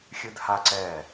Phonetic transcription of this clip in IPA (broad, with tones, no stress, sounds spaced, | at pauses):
xʲ ɨ˦ d h a˦ ǀ ɛ˦˨